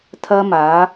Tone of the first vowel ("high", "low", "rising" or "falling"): high